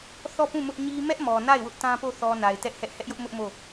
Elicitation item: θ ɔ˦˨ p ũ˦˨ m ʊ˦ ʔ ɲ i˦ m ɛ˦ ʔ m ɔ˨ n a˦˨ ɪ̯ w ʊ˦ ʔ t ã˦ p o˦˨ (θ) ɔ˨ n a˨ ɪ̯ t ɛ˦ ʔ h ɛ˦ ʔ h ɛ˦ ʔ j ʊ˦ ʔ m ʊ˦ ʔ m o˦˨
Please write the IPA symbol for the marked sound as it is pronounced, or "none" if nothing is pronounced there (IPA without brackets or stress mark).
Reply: θ